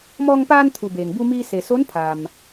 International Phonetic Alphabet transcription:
mɔː˧ŋpaː˧nt̪ʰu˩ beː˩ŋbu˧miː˧ se˩ so˧˥npʰa˩m

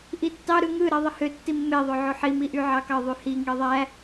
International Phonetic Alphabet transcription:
ʔitːɑ ɾɯŋɯ ɾeðˤihø tːimːe ðˤøʕoħi miʔyʕɑkɑ ðˤyhi ŋiðˤæ

